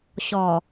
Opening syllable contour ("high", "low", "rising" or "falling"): low